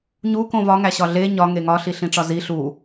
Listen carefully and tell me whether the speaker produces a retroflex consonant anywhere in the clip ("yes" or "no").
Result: yes